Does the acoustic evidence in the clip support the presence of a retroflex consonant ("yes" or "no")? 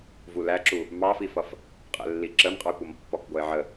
no